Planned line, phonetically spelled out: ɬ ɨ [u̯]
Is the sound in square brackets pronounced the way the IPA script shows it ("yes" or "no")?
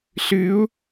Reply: yes